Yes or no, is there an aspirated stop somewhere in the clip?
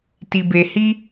no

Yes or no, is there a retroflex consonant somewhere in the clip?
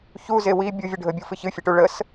yes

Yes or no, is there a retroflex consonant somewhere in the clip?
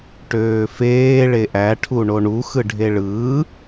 yes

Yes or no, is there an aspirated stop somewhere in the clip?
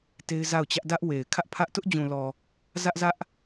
yes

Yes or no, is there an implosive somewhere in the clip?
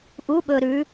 yes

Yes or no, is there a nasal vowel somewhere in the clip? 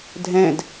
yes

